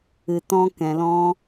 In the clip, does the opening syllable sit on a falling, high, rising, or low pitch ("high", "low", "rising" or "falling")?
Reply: low